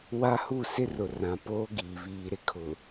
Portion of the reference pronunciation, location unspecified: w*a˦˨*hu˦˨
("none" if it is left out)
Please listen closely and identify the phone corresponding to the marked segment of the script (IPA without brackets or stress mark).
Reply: a˦